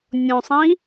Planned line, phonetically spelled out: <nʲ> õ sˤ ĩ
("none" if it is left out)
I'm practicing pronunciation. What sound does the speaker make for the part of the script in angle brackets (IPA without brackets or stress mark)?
nʲ